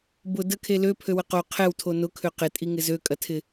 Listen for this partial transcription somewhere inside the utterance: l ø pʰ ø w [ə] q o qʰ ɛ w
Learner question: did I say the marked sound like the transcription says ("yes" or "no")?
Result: yes